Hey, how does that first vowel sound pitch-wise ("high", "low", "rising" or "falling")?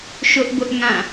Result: high